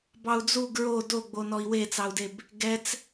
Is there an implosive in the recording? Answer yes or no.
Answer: no